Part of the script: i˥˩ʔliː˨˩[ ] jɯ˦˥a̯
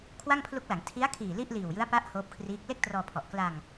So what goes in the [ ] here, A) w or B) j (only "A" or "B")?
A